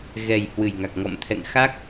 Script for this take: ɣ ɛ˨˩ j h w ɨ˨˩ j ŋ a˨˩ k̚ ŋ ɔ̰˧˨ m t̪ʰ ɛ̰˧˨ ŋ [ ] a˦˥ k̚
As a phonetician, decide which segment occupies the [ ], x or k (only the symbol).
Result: x